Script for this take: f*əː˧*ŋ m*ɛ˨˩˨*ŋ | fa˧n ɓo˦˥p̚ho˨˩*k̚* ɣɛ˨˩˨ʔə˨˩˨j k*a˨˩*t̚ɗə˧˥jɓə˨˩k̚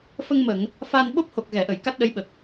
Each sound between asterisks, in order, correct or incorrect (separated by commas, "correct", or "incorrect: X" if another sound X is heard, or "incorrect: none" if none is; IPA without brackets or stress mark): incorrect: ə˧, incorrect: ə˨˩˨, correct, incorrect: a˦˥